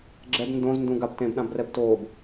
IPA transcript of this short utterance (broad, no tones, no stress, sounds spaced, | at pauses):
ɡ͡ǁ ɛ b n d õ z n d ũ ɡ a b t ẽ b ɗ ã b r ɛ b t oː b